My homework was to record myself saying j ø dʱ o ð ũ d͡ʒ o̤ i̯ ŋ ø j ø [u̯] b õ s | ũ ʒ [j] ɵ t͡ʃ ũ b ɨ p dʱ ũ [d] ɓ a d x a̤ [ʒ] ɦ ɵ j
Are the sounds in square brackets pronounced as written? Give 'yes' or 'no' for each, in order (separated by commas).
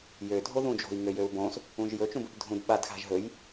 yes, yes, yes, yes